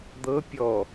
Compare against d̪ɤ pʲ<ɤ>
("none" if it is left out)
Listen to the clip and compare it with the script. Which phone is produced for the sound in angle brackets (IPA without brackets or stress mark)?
ɔ